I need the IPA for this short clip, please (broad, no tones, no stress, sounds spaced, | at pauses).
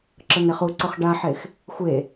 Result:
ǁ ɤ n e χ u ǀ ʊ χ ɖ a ħ e x | xʷ e